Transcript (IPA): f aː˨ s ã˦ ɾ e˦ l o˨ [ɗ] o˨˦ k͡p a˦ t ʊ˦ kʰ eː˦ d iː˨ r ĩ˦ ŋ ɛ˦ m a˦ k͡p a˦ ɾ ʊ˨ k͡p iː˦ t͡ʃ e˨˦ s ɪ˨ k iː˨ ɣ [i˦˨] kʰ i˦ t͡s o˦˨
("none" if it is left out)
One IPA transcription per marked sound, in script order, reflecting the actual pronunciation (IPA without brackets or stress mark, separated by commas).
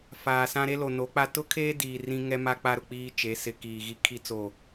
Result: n, i˦